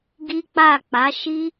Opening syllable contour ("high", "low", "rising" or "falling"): high